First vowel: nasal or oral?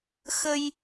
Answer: oral